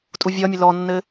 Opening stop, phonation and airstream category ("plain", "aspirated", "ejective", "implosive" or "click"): ejective